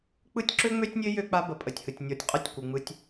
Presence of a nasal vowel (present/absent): absent